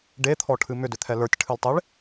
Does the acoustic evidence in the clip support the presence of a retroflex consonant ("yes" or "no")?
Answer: yes